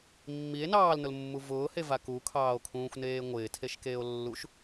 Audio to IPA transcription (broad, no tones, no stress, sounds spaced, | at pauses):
mː i e̯ n ɑː l n ʊ l mː u v ʊː h e v a k u kʰ ɑː o̯ kʰ ũː xʷ n eː ŋʷ ɪː tʰ e ʃ k eː o̯ lː u ʃ